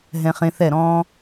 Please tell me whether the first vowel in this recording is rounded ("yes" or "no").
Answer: no